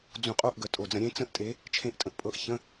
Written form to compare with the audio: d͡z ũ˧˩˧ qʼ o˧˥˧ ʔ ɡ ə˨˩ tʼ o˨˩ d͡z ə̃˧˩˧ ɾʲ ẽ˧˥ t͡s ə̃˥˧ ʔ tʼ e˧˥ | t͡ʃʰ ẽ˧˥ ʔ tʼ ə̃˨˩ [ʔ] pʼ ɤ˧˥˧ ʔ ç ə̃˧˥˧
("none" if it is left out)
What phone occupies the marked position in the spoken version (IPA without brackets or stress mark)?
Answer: ʔ